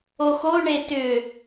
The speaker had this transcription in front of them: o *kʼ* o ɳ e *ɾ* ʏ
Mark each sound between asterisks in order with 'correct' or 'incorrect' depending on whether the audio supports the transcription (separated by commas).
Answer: incorrect, incorrect